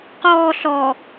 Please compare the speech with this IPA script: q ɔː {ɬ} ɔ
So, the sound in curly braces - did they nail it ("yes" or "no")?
yes